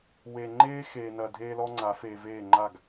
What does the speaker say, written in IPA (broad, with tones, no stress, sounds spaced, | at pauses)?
w e˨ ŋ͡ǃ eː˦ x eː˨ n ɐ˨ dʱ eː˦ l ɔ˦ ŋ͡ǀ a˨˦ f eː˨ v eː˦˨ ŋ͡ǃ a˦˨ ɡ